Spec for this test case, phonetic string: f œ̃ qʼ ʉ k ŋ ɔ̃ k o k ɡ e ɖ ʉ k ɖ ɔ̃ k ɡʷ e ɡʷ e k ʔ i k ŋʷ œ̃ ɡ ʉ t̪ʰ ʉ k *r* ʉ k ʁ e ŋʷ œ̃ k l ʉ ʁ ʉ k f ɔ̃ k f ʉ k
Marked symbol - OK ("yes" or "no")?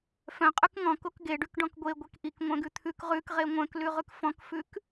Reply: no